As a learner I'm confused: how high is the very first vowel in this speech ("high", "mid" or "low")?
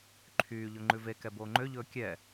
high